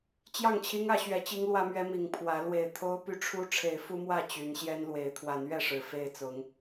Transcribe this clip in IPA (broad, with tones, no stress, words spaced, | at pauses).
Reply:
t͡ɕjɑ˥˨ŋt͡ɕʰi˦ŋä˨˦ ɕɥɛ˨˦t͡ɕi˦ŋlwä˦mɥɛ˦ mi˨˦ŋpʰwä˨˦ lwe˨˩ɪ̯t̪ʰo˦ʊ̯py˦ʈ͡ʂʰu˦ ʈ͡ʂʰe˨˦ɪ̯fu˦mwä˥˨ t͡ɕy˨˦n ɕjɛ˦nlwe˨˦ɪ̯ t̪ʰwa˨˦nɥɛ˥˨ʂɻ̩˨˩ fe˥˨ɪ̯t͡sʊ˨˦ŋ